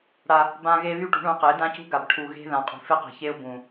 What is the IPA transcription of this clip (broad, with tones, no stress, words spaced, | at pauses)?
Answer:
ɽa˦ | bã˦ɣe˦ βy˦ʈṳ˨˦ɳũ˨˦qɪː˨˦ dã˦cṳ˦ɡa˨b ʈʰu˨ ɣe̤˦ ðã˨qʼṳ˨fe˦qe̤˨ çe˦ʊ̯ bũ˨